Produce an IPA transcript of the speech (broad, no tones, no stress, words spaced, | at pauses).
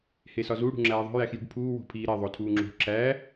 hesɒzu ɽṳŋ͡ǁæːðˤo̤ jæxjṳɖpʰuː wo̤pʰiːɾe ðˤotʰuːŋ͡ǁo̤ ǁæ